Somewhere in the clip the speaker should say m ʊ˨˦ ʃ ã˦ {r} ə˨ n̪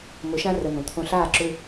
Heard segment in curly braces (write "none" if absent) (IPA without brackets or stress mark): r